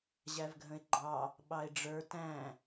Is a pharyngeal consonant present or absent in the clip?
absent